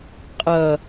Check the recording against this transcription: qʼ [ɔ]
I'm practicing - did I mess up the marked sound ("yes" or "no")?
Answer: yes